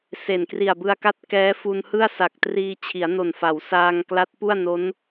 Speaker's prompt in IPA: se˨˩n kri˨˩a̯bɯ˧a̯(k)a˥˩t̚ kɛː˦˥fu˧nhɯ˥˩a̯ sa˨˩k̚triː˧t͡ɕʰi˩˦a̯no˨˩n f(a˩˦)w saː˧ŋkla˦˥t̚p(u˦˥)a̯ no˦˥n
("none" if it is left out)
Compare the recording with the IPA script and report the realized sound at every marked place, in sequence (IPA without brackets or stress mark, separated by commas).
k, a˩˦, u˥˩